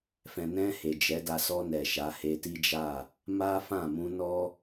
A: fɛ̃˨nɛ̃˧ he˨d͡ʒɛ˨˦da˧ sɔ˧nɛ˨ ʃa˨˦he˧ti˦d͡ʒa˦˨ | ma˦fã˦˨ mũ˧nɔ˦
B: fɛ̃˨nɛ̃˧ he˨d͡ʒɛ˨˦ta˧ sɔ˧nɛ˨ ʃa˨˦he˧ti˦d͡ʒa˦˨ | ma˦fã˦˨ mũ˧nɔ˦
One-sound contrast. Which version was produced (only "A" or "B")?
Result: A